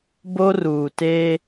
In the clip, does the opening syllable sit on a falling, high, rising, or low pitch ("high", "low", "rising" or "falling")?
high